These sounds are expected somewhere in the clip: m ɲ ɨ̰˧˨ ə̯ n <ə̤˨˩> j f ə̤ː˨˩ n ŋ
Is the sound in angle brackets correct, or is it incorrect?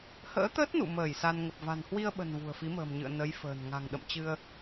incorrect